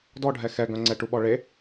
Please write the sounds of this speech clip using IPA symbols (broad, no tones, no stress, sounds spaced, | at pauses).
d ɔ ɖʱ ɛ x ɛ ɡ œ̃ ŋ͡ǀ ɛ ʈ u ɓ ɔ ɭ e